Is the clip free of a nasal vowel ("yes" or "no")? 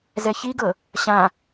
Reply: no